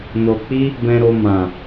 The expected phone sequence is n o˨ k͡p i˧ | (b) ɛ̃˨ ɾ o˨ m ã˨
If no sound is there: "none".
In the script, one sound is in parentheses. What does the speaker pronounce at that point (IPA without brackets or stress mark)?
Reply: b